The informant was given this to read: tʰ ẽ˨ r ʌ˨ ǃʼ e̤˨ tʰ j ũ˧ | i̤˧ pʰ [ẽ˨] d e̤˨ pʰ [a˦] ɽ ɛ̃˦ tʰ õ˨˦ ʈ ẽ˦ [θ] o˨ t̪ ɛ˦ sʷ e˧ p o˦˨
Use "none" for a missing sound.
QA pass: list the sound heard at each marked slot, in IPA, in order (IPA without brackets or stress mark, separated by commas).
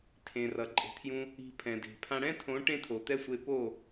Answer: ɛ̃˨, ã˦, t̪ʰ